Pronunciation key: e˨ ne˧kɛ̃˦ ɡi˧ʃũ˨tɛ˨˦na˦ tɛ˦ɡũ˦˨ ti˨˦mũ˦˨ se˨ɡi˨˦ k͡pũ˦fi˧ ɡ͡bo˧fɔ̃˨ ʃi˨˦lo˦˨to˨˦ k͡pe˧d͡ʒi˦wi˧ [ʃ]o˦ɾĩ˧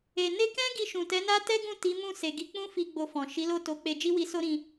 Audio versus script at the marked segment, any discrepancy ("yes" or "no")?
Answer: yes